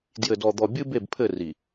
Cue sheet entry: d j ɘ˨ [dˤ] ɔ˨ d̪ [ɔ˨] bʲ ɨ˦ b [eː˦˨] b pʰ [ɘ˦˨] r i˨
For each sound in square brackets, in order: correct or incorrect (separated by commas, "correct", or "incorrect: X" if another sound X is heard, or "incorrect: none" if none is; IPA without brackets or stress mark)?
incorrect: d, correct, incorrect: e˦˨, correct